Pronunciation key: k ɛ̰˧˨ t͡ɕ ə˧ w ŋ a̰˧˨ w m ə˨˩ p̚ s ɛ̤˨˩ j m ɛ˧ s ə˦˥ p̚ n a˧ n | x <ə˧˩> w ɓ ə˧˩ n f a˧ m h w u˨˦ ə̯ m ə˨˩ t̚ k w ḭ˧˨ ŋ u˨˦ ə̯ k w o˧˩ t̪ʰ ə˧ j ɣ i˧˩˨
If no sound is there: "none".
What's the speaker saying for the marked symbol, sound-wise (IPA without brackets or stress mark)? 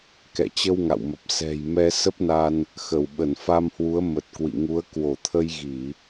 ə˧˩